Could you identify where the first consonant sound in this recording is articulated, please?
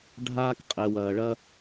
retroflex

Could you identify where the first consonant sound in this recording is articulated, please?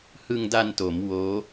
glottal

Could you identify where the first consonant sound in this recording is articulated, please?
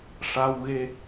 retroflex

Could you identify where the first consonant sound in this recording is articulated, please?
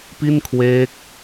labial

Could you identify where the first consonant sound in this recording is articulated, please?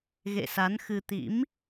velar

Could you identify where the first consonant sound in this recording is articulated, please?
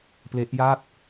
labial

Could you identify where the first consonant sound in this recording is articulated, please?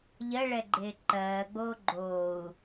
palatal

